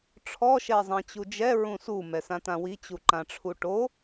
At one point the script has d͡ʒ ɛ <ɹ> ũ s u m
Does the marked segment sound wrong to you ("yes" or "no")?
no